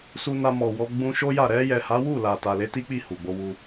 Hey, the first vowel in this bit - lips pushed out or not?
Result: yes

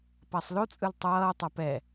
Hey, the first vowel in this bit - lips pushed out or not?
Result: no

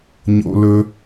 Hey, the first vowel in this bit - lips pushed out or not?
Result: yes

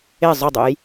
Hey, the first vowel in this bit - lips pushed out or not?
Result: no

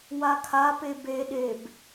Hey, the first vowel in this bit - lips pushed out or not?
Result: no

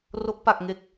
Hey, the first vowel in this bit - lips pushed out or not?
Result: yes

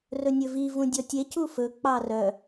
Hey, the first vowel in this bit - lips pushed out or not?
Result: yes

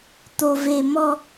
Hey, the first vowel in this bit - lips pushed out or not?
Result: yes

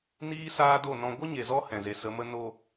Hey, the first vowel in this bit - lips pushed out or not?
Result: no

